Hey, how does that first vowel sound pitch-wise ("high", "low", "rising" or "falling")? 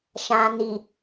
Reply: low